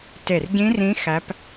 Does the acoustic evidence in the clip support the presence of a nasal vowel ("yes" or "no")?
yes